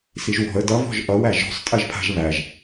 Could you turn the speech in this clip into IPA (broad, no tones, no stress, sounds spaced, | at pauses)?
s i ʒ w ɔ̤ ə̯ d ʌ v ɔ̤ ʒ ʔ ʌ w æ ʒ ɔ̤ sˤ tʼ ɜ ʒ pʰ a̤ ʒ β æ ʒ